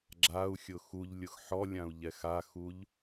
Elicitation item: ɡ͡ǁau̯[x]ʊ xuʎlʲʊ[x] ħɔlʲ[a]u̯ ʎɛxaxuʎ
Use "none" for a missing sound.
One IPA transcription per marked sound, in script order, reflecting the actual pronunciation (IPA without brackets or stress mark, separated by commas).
xʲ, x, ã